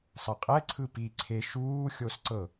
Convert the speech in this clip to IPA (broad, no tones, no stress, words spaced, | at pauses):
sˤɤqʼɛ ǀʰɯpi ǀʰe ʃuː xʲosǀɤ